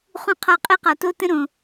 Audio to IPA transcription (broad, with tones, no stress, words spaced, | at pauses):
χũ˧qʰɒ˧ qʼe˦qɒ˨to˦ tə̃˦ɾõ˨